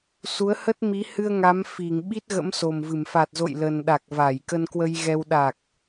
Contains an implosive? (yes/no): yes